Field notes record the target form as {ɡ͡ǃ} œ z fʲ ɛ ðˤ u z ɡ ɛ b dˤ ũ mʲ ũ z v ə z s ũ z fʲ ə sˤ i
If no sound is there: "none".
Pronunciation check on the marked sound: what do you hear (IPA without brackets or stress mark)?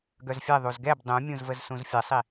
ɡ